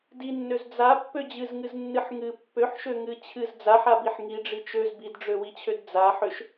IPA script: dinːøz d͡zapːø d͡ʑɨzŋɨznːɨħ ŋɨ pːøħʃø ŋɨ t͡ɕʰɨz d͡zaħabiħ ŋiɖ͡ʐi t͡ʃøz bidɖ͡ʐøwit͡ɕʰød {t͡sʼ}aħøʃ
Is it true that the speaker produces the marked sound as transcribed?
no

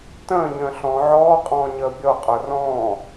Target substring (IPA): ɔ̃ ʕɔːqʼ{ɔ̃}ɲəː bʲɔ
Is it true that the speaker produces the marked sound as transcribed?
no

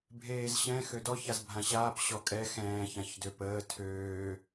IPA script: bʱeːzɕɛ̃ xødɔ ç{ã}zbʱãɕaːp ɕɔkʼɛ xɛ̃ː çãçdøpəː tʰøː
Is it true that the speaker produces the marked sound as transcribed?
no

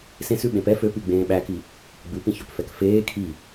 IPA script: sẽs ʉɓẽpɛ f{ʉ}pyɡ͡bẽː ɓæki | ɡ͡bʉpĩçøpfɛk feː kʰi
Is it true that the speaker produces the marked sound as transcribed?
no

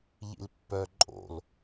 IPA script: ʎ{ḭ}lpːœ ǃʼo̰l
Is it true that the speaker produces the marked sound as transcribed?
yes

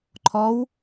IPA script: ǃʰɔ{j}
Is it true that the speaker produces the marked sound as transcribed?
no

